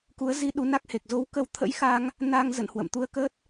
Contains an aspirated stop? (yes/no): yes